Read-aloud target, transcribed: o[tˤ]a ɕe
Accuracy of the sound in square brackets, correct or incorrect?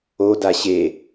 incorrect: d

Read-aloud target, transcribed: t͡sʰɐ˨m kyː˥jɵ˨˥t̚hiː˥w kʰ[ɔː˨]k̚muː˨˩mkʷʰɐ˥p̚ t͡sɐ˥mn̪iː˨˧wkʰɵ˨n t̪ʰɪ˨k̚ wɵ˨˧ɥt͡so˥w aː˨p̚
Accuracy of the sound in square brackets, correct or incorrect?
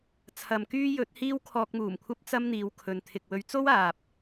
incorrect: ɔː˧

